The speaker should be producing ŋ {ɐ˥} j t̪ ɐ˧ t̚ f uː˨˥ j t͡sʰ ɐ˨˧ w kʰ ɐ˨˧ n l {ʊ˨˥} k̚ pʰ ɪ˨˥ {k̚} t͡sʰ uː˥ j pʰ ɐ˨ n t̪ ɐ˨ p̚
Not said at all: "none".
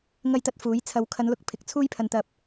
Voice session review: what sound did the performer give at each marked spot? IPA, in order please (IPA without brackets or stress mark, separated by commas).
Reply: ɐ˥, ʊ˨, k̚